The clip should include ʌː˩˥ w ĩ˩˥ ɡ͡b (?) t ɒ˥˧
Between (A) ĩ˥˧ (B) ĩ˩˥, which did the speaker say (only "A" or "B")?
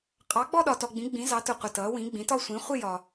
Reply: B